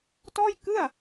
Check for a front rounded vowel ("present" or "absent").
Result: absent